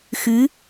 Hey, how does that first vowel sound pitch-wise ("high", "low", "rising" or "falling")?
rising